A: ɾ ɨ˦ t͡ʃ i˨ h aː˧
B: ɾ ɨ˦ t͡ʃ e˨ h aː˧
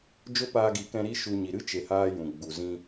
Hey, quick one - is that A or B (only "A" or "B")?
B